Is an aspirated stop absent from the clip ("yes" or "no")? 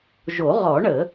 yes